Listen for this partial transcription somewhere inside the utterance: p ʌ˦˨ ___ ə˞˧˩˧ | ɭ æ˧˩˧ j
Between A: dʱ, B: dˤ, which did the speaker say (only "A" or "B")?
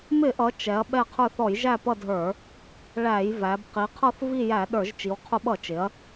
A